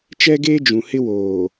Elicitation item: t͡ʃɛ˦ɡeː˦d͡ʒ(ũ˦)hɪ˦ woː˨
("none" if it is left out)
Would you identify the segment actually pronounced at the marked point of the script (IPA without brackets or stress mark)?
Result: ũ˨